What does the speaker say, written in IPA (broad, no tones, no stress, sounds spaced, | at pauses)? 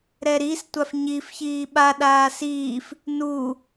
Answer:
ɾ ɛ ɾ i s tʷ a f ɲ i f ç iː ɓ a ɗ aː s iː f | n u